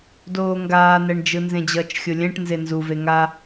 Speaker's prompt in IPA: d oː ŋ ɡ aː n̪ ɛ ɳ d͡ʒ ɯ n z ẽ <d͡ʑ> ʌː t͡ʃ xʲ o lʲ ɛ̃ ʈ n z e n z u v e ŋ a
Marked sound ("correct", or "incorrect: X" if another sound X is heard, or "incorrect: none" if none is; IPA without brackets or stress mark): correct